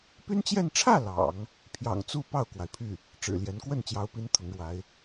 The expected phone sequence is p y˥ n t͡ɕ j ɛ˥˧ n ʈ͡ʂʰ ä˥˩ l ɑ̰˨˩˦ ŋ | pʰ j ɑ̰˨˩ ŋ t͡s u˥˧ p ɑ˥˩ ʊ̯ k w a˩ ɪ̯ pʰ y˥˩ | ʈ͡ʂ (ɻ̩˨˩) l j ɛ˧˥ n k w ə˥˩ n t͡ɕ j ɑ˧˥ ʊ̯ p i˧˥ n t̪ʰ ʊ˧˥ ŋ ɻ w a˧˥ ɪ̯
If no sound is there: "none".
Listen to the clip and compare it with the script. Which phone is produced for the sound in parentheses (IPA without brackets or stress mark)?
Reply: ɻ̩˨˩